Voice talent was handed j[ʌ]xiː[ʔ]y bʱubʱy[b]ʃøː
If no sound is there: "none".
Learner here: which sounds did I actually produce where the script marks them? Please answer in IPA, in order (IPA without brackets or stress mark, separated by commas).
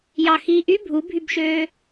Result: ɑ, ʔ, b